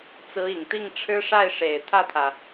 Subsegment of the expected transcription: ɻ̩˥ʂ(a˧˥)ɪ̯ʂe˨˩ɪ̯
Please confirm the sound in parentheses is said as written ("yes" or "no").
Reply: no